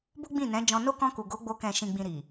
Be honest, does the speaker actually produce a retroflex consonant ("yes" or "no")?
no